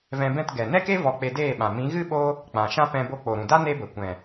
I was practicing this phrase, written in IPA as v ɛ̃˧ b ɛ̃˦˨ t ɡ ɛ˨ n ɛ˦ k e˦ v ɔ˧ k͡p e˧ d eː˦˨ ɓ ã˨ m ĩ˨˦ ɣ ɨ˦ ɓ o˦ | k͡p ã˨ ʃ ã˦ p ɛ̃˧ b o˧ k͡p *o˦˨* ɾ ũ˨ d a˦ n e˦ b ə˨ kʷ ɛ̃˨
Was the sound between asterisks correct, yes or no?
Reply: no